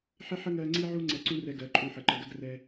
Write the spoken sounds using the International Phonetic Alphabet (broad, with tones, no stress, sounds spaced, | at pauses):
ħ ɪ˦ ħ ə˦ ŋ ɜ˧ ŋ͡ǀ i˧ ʕ u˧ ŋ͡ǀ ɛ˧ ǀ ũ˦ r ɛ˧ ɡ ɜ˨˦ ǃʼ ũ˦˨ ħ ə˨˦ ǃ ə˨ ɡ ɜ˦ ɡ r ɛ˦